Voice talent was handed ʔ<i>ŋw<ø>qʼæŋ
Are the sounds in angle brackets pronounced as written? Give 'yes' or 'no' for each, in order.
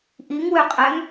yes, yes

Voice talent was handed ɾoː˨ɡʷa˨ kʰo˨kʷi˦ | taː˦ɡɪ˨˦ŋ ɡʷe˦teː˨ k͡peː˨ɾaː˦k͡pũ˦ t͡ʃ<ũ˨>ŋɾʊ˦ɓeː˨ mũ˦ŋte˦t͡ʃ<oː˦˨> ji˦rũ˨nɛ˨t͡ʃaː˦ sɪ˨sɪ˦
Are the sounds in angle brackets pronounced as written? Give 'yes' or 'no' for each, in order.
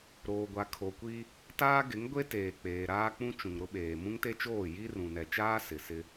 yes, yes

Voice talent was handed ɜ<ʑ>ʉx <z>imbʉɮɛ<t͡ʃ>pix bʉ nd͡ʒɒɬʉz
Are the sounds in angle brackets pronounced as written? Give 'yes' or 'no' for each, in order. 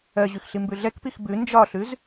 yes, no, no

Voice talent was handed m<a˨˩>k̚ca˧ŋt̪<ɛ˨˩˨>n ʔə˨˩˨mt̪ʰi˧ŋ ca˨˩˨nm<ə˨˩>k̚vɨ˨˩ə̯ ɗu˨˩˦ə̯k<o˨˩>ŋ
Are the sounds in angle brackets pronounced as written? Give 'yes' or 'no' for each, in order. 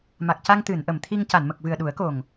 yes, no, yes, yes

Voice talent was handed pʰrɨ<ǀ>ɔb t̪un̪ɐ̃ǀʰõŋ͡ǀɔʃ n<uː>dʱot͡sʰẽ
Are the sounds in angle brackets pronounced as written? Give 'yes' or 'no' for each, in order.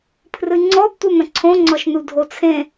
no, no

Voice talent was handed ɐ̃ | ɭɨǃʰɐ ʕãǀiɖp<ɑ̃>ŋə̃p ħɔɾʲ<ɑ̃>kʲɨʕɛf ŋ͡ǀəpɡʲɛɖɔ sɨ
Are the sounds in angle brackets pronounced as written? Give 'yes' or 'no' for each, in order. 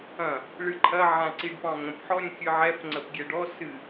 yes, no

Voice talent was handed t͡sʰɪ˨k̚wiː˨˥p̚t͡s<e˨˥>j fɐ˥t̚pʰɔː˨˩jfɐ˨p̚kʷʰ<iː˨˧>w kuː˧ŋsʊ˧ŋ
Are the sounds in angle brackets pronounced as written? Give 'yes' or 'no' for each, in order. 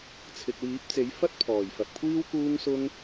yes, no

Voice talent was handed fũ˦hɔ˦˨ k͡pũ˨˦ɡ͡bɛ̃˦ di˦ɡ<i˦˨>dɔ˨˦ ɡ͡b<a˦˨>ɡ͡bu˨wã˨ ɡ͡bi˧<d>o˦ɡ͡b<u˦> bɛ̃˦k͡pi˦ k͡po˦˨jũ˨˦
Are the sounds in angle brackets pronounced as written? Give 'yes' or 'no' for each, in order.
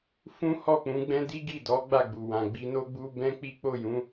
yes, yes, no, yes

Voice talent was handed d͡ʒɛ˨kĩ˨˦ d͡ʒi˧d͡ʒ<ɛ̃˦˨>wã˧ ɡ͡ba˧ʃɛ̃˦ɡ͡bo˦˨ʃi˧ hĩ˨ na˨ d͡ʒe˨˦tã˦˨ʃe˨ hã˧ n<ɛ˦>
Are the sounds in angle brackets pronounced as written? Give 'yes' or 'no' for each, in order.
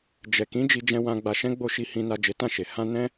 no, no

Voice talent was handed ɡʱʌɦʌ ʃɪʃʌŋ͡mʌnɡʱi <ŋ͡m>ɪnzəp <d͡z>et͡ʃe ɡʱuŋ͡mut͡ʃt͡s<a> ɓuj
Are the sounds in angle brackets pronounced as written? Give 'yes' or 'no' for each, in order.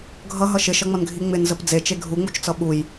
yes, yes, no

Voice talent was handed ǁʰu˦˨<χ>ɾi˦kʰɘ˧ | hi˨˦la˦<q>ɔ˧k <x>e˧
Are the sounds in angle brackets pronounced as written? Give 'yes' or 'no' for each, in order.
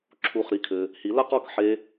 yes, yes, no

